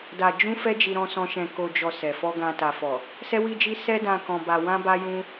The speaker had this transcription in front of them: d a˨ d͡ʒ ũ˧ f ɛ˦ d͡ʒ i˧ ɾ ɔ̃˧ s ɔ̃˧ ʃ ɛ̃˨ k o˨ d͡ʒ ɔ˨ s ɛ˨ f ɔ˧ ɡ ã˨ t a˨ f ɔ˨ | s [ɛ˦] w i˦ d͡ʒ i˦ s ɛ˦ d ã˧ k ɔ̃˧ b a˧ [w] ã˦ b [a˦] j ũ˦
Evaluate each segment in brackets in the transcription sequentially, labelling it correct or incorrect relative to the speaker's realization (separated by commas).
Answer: correct, correct, correct